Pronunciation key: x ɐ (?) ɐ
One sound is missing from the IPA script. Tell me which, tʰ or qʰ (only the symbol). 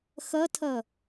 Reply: tʰ